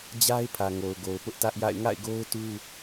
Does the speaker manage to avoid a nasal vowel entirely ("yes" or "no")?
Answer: yes